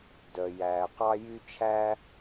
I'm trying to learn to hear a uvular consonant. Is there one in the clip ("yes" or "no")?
yes